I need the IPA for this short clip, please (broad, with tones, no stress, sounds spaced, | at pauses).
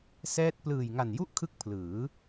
s ɛː˥˩ t̚ p l ɯː˨˩ j ŋ a˨˩ n j u˥˩ ʔ kʰ ɯ˦˥ k̚ pʰ l ɯː˩˦